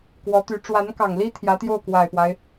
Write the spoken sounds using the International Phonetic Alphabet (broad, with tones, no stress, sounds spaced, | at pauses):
k w ɔ˧˥ t̪ y˧˥ ʈ͡ʂ w a˧˥ n k ɑ˨˩ ŋ l i˥ t̪ʰ j ä˧˥ t̪ j o˥˩ ʊ̯ k w a˨˩ ɪ̯ p w a˦ ɪ̯